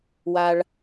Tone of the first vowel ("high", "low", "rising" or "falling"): low